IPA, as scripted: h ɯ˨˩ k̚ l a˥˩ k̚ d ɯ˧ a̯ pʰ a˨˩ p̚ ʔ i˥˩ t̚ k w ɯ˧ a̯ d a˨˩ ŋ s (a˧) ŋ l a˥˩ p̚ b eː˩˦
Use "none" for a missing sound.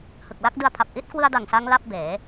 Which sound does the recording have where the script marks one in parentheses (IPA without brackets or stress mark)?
a˧